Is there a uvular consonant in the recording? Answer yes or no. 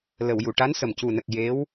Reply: no